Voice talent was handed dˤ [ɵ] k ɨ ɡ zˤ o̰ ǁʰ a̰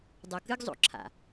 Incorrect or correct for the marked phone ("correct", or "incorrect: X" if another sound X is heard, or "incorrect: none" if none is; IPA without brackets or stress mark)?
incorrect: o